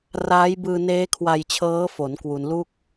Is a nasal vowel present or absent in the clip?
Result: absent